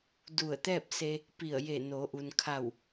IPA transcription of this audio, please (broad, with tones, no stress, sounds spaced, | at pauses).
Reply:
d u˧˩ ə̯ t̪ ɛː˥˨ p̚ s e˧ | p i˧˩ ə̯ j e˧˩ n o˩˧ ʔ u˩ n kʰ a˧˩ w